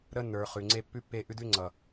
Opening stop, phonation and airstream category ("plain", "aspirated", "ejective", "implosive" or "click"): click